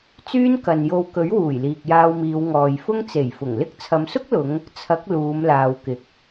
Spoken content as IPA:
t͡s yː˥ n k ɐ˨ n j o˧ w k ɵ˨˥ ɥ w uː˨˩ j l iː˨ k̚ j aː˧ w m iː˨˧ w ŋ ɔː˨ j f ʊ˥ ŋ t͡s e˨˩ j f ʊ˨˩ ŋ l ɪ˥ k̚ t͡sʰ ɐ˨˧ m s ʊ˥ k̚ l ʊ˨˧ ŋ | t͡sʰ ɐ˨˥ k̚ l uː˨˧ m l aː˨ w k ɪ˨ k̚

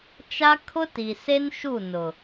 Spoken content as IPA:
t͡ʃ a˦ kʰ ʊ˦ t i˨ s e˦ n ʃ u˦˨ n ʊ˨

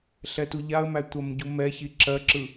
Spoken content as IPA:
ɬ ɛ t u ʎ a ə̯ m æ tʷ ɜ m ɟ u m ɛ ç i ǁ ɜ ǁ ɯ

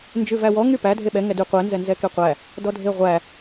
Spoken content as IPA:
n d͡ʒ ʉ v æ w ɔ ŋ y p æ dʱ e ɓ ɛ ŋ ɛ d y qʷ ɛ n z ɛ n z ɛ k e qʷ æ | d ɔ dʱ e ʁʷ æ

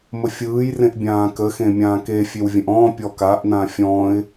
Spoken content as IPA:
m ə fʲ ɯː j r ẽ ʔ bʲ ãː k ə x ẽ mʲ ãː k e fʲ e w vʲ ə̃ ʔ ɔ̃ː pʲ ɔ k a ʔ n̪ ã fʲ ɔ̃ː ɪ̯

